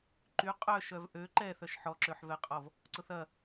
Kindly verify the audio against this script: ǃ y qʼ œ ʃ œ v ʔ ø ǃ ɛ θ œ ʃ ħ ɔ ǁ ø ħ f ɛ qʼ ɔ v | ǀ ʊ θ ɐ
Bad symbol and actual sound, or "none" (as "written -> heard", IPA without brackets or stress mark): f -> v